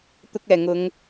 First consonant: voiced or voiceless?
voiceless